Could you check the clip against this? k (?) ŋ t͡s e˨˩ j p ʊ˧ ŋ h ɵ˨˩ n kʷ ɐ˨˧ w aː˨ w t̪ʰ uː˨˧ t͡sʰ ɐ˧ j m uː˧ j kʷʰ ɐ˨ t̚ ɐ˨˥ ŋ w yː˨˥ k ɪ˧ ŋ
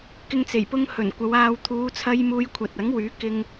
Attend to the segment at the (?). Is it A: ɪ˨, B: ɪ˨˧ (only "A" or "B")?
A